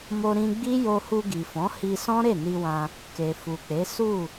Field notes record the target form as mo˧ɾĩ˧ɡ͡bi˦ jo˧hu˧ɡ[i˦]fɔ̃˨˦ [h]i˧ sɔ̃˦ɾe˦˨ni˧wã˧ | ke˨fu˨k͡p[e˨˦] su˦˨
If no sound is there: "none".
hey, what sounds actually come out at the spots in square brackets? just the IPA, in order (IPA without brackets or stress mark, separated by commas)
i˨, h, e˨˦